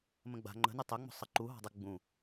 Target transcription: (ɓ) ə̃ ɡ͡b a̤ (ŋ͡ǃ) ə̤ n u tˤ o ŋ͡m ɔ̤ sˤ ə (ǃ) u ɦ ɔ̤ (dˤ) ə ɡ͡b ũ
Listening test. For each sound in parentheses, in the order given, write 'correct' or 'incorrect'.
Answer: incorrect: m, correct, correct, correct

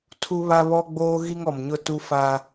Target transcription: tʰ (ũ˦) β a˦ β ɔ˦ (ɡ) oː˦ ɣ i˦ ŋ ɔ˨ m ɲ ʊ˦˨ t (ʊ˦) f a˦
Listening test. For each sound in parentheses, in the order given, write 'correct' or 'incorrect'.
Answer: incorrect: u˦, incorrect: ɡ͡b, incorrect: u˦

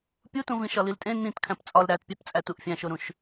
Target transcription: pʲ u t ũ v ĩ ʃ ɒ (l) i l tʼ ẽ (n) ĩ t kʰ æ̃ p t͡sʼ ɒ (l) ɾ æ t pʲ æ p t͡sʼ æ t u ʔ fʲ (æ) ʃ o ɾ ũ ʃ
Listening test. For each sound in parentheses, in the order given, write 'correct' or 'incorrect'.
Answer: correct, correct, correct, incorrect: æ̃

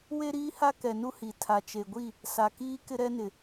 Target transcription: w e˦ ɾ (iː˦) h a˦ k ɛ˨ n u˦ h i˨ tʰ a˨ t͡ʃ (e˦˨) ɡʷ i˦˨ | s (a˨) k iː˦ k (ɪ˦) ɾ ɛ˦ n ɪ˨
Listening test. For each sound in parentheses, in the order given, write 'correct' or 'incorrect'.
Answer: correct, incorrect: e˨, correct, correct

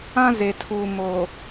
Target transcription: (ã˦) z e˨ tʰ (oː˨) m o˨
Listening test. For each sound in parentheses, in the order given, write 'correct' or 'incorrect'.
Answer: correct, incorrect: uː˨

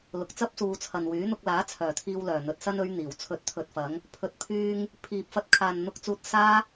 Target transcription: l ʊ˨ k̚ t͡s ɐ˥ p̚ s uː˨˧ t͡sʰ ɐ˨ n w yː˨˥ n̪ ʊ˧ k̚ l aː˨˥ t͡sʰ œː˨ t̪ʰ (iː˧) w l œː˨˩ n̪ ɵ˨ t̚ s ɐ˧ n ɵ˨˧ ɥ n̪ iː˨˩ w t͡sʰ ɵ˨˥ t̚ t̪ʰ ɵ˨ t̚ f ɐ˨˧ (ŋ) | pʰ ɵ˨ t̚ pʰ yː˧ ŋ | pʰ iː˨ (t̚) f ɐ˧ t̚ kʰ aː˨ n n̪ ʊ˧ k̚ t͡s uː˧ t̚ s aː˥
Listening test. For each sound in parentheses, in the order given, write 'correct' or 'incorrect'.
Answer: correct, correct, incorrect: p̚

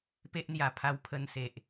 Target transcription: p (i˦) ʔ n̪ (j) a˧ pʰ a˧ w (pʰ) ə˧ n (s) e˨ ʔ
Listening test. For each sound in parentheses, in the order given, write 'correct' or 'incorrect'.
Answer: incorrect: e˦, correct, correct, correct

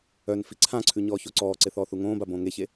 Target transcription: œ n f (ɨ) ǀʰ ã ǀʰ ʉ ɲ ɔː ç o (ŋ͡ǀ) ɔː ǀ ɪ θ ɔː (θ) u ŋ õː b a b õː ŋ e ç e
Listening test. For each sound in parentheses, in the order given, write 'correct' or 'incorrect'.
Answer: incorrect: i, incorrect: ǀ, correct

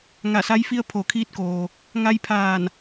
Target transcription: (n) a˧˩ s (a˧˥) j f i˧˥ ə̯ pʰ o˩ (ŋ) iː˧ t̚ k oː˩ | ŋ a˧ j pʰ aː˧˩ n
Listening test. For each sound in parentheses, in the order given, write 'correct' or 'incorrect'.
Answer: incorrect: ŋ, correct, incorrect: kʰ

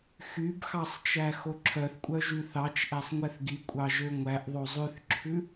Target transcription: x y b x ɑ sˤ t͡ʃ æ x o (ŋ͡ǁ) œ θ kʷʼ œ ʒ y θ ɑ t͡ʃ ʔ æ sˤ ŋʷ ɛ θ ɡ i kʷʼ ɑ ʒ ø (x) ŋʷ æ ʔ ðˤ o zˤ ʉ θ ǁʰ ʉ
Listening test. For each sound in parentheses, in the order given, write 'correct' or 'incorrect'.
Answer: incorrect: ǁʰ, incorrect: none

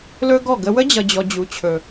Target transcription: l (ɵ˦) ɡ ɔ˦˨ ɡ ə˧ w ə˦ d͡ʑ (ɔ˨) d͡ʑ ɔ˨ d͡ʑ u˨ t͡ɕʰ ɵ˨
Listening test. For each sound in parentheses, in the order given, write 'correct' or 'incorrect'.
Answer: correct, incorrect: ʌ˨

